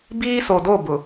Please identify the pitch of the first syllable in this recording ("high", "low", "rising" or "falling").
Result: high